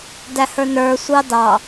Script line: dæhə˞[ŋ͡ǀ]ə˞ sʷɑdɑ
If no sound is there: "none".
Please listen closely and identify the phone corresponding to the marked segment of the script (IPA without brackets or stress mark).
n